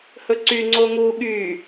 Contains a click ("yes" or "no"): yes